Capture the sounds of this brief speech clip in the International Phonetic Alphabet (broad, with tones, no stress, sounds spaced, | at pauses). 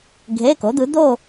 ɡʱ e˧˥˧ k o˨˥ d̪ ɯ˨˥ d̪ o˥˧